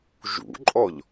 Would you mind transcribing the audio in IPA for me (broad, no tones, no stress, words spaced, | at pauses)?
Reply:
ʒṵǃʼɔʎ